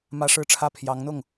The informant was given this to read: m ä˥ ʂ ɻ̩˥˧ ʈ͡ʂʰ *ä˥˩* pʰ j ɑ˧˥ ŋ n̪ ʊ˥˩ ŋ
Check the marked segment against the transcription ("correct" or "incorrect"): correct